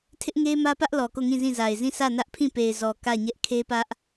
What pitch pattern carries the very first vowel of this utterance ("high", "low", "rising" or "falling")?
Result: high